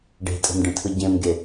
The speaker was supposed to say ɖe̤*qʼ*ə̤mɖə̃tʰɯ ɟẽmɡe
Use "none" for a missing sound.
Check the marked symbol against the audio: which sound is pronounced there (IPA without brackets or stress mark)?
tʼ